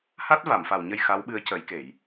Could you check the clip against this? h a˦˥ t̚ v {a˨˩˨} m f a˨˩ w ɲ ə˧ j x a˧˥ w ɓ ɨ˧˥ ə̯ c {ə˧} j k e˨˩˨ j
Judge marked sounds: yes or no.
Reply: yes, no

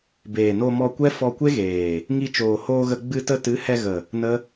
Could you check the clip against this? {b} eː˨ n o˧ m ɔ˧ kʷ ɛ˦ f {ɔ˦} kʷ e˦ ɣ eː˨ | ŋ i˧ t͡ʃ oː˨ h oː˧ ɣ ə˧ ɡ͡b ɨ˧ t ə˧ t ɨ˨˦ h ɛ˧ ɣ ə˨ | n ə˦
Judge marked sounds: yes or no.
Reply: yes, no

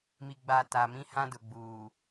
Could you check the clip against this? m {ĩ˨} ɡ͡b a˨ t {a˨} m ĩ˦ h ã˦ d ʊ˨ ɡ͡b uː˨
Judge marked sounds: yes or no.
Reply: no, yes

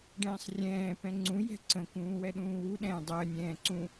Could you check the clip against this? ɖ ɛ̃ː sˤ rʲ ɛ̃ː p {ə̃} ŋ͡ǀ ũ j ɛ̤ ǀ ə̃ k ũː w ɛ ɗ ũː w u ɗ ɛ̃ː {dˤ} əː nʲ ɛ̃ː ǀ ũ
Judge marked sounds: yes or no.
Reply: no, yes

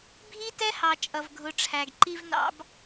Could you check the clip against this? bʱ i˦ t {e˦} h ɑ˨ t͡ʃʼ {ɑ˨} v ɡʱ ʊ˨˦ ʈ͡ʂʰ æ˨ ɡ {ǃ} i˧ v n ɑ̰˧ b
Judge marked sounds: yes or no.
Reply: no, no, yes

